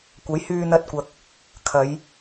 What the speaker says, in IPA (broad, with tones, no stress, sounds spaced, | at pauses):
kʷ ɐ˨˥ j h yː˧ n̪ ɐ˧ t̚ kʷ ɐ˨˥ k̚ | kʰ ɐ˨˧ j